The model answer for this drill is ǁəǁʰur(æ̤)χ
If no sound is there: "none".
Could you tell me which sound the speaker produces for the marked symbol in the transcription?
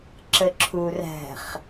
æ̤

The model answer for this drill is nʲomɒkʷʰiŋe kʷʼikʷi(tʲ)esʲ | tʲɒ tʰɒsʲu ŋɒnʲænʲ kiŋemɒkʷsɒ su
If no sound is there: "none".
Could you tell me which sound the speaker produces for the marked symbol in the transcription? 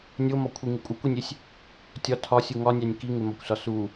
nʲ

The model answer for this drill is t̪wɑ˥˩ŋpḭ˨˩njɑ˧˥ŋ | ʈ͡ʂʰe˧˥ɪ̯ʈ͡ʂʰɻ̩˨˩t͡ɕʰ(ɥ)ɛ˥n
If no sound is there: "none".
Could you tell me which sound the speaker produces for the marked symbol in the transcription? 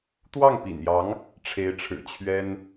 ɥ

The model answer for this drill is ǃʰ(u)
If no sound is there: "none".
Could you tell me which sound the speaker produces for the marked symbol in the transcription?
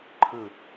ɯ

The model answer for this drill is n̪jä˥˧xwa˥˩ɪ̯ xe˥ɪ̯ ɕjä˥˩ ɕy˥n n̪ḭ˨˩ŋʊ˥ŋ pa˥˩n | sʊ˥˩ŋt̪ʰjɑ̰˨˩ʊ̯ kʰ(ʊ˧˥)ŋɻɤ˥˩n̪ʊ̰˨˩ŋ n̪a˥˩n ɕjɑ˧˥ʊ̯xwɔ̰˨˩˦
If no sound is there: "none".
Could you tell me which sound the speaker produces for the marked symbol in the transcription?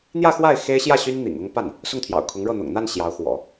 ʊ˧˥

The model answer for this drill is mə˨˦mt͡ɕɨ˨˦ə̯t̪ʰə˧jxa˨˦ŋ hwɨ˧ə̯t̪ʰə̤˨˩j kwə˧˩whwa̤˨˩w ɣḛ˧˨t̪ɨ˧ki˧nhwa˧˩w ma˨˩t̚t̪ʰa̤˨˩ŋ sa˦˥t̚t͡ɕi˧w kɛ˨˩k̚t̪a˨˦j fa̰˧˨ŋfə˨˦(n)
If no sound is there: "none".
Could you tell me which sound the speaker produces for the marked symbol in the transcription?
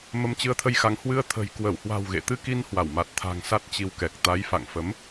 m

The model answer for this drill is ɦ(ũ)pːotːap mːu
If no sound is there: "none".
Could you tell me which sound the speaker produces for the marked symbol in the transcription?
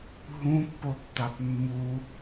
ũ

